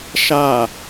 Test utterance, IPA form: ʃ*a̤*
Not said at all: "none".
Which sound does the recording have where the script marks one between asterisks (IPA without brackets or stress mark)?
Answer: a